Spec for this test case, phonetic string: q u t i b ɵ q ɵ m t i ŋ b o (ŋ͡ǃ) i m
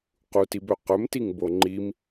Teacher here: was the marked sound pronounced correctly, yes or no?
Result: yes